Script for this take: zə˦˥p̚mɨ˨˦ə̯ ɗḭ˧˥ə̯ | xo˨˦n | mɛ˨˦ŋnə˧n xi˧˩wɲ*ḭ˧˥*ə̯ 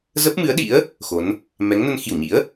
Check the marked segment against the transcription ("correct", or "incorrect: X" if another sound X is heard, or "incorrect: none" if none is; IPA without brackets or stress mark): correct